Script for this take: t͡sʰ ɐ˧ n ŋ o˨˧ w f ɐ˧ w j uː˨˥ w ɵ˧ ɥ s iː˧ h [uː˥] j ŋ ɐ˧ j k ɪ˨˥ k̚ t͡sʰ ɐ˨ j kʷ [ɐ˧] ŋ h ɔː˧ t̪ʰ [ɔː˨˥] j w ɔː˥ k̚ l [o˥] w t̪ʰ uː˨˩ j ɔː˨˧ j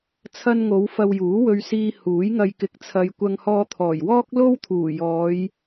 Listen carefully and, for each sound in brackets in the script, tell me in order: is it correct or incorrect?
incorrect: uː˨˥, correct, incorrect: ɔː˨˩, correct

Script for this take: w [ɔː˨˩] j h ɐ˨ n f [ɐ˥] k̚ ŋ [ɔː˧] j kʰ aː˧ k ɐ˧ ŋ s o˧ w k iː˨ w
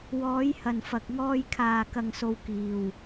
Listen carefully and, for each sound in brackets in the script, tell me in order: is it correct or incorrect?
incorrect: ɔː˨˧, incorrect: ɐ˨, correct

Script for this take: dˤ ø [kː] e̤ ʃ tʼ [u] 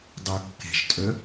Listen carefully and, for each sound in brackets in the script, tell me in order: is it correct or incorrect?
correct, incorrect: ø

